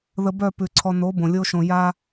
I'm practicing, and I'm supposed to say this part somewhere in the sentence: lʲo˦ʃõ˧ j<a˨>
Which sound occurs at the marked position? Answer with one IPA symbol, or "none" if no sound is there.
a˦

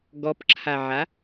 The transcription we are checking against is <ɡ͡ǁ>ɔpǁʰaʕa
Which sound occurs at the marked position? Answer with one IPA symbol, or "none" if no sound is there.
ɡ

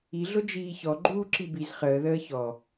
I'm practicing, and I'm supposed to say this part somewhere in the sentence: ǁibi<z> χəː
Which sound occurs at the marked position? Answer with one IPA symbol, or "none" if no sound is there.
z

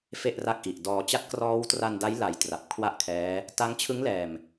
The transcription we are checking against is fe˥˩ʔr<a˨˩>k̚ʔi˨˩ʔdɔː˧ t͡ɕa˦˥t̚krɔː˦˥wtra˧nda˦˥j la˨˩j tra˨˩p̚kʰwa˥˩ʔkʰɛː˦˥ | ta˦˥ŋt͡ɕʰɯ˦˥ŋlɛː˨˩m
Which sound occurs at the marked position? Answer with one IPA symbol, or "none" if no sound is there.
a˥˩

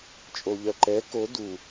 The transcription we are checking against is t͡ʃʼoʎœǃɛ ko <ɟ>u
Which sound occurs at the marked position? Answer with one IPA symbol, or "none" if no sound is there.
d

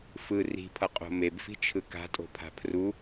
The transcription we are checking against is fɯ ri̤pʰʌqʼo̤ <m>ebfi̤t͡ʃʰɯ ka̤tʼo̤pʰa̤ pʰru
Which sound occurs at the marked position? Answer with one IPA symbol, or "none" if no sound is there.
m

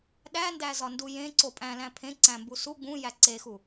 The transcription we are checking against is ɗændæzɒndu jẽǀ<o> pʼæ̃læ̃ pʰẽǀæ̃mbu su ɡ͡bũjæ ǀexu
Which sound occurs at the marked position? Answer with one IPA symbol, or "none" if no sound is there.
o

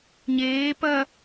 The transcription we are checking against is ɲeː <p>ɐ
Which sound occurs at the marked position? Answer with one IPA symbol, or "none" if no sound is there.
p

